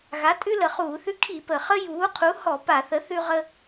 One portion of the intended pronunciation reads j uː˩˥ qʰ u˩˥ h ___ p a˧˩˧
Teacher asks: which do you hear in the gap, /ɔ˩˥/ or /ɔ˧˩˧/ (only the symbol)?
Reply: ɔ˧˩˧